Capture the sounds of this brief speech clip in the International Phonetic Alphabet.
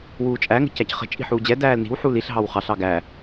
wuːt͡ʃʼæ ŋə̤cæcχə̤ t͡ʃʼi̤ħuːd͡ʑɛ dæːlni̤w ħuliɬ ɦɑwχɑɬ ɑɡæ

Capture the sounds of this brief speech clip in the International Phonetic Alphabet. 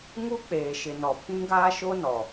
ŋu˦k͡peː˨ʃɪ˨ nɔ˨pʰĩ˦ɡaː˦ʃo˦ nɔ˨

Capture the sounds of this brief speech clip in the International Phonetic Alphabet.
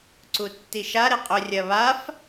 ǀutːiʃa ɾeqʼɵ rʲɐβaf

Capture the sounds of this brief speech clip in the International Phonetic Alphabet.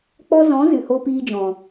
k͡pɔ˧zɔ̃˨˦ zɨ˨ho˧piː˧ d͡ʒɔ̃˨

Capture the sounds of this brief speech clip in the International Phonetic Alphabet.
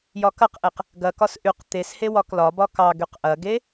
jɒkɐqʔeq | ɡɐkɒs ʔyq t̪es hewɒklɒbɒ kɑɡyq ʔɐɡe

